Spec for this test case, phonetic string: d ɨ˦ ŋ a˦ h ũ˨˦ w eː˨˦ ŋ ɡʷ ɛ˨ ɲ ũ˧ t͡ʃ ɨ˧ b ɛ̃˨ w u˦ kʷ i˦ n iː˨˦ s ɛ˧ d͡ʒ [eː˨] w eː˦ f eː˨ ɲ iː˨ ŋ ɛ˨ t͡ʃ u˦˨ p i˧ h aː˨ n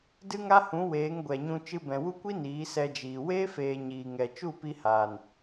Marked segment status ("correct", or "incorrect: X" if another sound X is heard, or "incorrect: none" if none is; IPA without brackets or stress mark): incorrect: iː˨